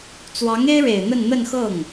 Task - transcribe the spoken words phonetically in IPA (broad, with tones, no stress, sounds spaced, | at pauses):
t͡s w ɑ˧˥ ŋ e˥ ɪ̯ ɻ e˨˩ ɪ̯ n̪ ə˥˧ n n̪ ə˥˧ n x ɤ˥˩ ŋ